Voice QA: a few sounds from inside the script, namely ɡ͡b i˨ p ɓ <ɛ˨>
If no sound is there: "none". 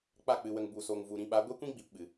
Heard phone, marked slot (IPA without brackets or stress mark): ɨ˨